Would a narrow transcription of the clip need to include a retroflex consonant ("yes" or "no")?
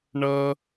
yes